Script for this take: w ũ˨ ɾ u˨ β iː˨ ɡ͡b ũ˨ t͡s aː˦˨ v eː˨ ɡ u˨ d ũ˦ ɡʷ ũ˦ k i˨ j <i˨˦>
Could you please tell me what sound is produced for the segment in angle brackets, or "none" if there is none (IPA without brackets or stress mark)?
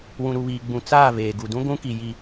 i˨